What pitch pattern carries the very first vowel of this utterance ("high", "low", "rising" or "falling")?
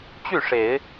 falling